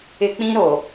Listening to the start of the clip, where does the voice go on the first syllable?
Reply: high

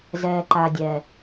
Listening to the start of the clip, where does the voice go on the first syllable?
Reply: low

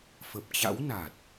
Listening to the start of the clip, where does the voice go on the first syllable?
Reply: low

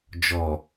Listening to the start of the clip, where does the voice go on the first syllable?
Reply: low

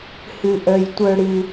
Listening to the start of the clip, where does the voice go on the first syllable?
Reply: low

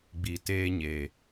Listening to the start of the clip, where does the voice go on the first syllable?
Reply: low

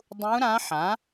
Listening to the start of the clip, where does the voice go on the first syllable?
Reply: rising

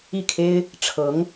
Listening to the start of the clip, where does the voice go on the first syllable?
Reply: falling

